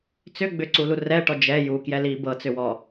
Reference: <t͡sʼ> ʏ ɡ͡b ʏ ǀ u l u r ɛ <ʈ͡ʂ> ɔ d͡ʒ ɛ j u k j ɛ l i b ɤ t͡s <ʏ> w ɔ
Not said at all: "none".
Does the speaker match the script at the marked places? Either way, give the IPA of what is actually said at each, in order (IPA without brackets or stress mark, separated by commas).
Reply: t͡s, ʈ, ʏ